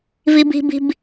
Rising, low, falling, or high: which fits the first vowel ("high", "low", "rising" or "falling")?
high